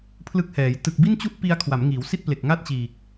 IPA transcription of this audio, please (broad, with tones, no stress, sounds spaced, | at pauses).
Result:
pʰ l ɯ˦˥ k̚ h ɛː˩˦ j t ɯ˨˩ k̚ b i˥˩ n t͡ɕ u˥˩ ʔ p i˧ a̯ kʰ w a˩˦ m ŋ iː˩˦ w s i˥˩ t̚ p l e˨˩ k̚ ŋ a˥˩ t̚ t͡ɕ iː˨˩ k̚